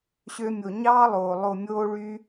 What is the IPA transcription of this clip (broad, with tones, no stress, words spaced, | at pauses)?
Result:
ɕø˧mʲo˨ɲɑː˦lˠoː˨ lˠo˨mʲoː˧ɭy˧